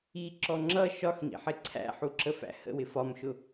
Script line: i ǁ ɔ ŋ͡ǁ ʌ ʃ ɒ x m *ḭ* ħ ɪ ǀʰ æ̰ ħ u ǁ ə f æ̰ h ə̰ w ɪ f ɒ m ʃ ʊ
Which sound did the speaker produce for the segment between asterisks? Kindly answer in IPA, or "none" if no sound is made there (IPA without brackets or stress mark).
ḭ